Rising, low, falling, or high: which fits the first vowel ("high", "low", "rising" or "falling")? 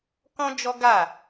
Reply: high